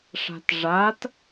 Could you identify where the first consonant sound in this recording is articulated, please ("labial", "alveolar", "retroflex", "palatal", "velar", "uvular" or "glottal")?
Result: retroflex